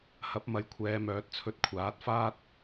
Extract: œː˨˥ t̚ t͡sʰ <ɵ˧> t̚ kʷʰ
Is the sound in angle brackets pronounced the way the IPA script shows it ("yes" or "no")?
yes